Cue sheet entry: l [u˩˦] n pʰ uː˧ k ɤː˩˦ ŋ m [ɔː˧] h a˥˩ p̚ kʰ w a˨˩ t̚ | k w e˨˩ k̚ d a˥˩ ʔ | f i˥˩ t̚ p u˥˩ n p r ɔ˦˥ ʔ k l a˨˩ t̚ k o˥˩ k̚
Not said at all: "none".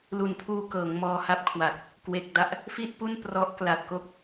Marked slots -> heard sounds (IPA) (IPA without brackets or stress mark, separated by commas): u˩˦, ɔː˧